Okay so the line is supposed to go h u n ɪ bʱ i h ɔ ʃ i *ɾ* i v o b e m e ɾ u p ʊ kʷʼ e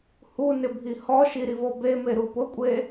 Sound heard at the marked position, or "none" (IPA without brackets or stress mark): ɾ